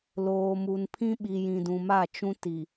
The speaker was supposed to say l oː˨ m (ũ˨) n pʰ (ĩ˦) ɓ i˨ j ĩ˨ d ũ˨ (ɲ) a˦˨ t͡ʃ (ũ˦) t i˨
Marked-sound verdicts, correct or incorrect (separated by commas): incorrect, correct, incorrect, correct